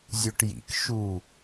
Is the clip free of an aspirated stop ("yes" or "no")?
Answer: yes